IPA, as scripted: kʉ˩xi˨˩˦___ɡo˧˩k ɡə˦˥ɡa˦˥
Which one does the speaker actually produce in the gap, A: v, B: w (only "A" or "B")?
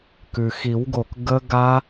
B